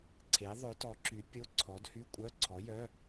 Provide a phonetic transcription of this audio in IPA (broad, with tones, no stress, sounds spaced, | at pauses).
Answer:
ǀʰ e˨˥ ðˤ ɵ˨˥ t ɔ˨˥ ǁ y˨˥ pʲ o˧˥˧ ǀʰ ɔ˨˥ d h y˧˥˧ kʷʼ œ˧˥˧ ǀʰ ɔ˨˥ j œ˧˥˧